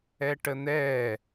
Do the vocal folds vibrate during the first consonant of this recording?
no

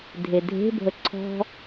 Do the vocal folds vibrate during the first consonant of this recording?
yes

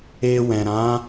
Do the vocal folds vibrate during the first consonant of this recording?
yes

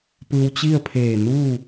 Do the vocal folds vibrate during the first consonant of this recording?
no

